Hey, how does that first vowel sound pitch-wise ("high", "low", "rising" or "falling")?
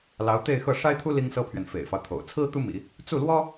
rising